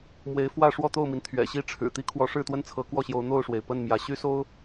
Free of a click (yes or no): yes